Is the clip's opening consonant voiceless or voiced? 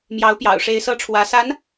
voiced